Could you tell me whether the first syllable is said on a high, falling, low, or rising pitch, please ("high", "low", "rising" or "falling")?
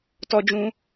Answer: high